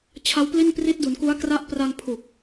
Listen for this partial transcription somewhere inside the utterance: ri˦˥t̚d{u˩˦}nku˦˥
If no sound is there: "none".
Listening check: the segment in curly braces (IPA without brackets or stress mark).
u˩˦